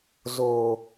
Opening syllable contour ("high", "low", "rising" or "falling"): low